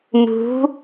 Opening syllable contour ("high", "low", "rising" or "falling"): rising